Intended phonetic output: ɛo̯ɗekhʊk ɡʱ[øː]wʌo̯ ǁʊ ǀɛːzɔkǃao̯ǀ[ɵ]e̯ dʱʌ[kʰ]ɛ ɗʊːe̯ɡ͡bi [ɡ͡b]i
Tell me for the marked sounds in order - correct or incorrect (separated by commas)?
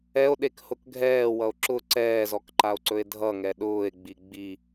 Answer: incorrect, correct, incorrect, correct